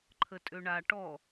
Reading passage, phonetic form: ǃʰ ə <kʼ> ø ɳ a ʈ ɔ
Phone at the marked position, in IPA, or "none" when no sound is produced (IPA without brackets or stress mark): tʼ